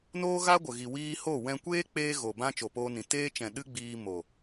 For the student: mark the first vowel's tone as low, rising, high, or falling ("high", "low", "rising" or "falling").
high